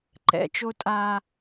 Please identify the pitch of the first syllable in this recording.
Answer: low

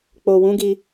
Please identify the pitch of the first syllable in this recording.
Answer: low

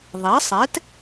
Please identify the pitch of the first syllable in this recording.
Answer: rising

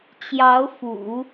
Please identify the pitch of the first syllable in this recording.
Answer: rising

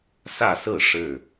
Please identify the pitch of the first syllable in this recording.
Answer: falling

